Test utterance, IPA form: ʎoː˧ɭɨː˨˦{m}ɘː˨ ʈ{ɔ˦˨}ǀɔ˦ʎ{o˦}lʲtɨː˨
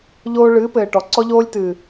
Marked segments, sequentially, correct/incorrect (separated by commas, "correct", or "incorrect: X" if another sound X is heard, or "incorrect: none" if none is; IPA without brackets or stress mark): incorrect: p, incorrect: ɔ˨, incorrect: oː˦